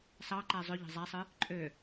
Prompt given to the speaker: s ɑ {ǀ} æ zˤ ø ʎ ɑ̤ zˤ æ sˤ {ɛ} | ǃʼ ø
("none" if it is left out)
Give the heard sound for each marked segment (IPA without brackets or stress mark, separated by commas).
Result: ǃ, ɨ